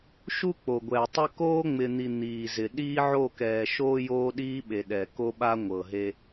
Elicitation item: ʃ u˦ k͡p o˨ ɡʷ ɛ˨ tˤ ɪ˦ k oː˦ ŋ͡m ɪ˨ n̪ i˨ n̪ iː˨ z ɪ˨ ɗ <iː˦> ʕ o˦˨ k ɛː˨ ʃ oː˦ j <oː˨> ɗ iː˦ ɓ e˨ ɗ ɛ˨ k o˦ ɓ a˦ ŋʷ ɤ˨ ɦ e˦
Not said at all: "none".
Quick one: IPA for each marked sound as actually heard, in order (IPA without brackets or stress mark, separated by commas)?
iː˦, oː˦